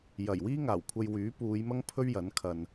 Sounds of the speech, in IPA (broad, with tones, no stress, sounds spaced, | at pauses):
j ɐ˨˩ j w iː˥ ŋ aː˨˩ w kʷʰ ɐ˧ j w yː˨˥ p uː˨˧ j m ɐ˥ ŋ pʰ ɵ˥ ɥ j ɐ˨˥ n kʰ ɐ˧ n